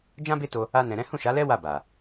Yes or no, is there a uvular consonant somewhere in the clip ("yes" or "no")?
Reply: no